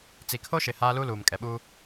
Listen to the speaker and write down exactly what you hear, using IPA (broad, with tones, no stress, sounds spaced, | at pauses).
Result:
t͡s i˨ kʰ o˦ ʃ ɪ˨ h aː˦ l u˦ l uː˨ m kʼ ɛ˨ ɓ uː˦